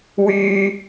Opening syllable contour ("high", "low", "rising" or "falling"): high